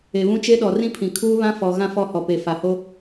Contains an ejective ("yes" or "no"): no